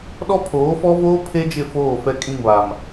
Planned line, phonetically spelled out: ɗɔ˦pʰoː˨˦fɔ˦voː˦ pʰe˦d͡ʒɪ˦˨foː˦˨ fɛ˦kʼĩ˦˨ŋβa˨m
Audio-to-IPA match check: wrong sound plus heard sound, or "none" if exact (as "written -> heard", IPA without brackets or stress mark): none